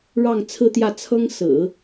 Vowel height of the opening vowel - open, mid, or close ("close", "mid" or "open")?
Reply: open